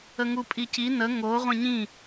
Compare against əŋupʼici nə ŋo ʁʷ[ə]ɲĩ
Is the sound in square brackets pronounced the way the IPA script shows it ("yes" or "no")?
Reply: no